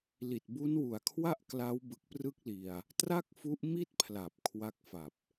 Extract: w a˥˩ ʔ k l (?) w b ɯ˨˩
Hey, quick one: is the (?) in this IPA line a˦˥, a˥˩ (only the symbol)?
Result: a˦˥